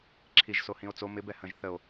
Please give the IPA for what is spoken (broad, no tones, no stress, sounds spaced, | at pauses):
ǁʰ i ʒ s o h ĩ o̯ t͡s o m ɪ b ɛ h ə̃ ʒ θ ə o̯